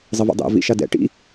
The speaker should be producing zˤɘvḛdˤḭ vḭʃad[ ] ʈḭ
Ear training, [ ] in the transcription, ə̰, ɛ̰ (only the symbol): ɛ̰